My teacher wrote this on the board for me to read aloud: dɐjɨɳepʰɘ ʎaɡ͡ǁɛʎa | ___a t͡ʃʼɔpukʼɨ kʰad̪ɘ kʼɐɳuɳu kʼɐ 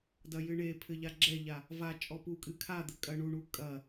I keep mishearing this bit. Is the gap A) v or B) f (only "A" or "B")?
A